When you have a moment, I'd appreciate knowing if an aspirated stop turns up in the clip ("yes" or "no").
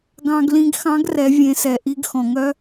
no